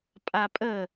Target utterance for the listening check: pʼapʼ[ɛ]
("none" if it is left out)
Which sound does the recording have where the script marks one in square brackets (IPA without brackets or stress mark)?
ə